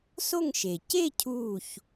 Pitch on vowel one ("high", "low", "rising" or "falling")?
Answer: falling